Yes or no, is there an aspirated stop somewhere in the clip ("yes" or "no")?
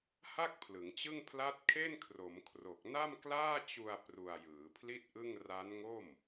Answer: yes